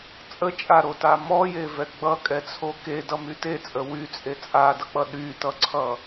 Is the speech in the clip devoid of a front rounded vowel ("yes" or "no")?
no